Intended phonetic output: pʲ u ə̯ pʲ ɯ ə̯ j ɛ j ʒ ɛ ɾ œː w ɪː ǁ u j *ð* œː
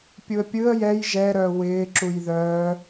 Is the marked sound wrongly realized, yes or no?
no